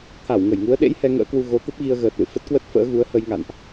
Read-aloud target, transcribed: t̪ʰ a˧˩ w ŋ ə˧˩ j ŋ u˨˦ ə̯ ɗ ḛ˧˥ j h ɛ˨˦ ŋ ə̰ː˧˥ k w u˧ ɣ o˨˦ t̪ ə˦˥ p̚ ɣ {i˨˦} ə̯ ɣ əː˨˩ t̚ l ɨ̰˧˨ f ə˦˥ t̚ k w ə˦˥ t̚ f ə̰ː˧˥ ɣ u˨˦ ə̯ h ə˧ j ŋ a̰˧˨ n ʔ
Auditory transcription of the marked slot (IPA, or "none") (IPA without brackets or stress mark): i˧